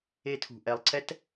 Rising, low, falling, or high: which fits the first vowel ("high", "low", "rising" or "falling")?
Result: high